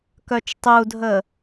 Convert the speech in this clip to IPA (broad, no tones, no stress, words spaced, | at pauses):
kœt͡ʃtˤudʱə